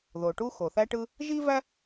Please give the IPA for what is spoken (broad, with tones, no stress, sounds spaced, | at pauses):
ð o˩ ʈ u˥ x o˩ θ æ˥ ʈ ɯ˥ | ʒ i˥ v æ˥